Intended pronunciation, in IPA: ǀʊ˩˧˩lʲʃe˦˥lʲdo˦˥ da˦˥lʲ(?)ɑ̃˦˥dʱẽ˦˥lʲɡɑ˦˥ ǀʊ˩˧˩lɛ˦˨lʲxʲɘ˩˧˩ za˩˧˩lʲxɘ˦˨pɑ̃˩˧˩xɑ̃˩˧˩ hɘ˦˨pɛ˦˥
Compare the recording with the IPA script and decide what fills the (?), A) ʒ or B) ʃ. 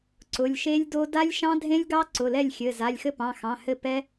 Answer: B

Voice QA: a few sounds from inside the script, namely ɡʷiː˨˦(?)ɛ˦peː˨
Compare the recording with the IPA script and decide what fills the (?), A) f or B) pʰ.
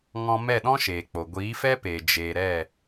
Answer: A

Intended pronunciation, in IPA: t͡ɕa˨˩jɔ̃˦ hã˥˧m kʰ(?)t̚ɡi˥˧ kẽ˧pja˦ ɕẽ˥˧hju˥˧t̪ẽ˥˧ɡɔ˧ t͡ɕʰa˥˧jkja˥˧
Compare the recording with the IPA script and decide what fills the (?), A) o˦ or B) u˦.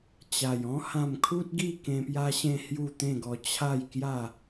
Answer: B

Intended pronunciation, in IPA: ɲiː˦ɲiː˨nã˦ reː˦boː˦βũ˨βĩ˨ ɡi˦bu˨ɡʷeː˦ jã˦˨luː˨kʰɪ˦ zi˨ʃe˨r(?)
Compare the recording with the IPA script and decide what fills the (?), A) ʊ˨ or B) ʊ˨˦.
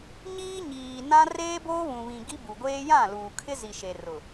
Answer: A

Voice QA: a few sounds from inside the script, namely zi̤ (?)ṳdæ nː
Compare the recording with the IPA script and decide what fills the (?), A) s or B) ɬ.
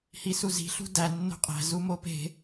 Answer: B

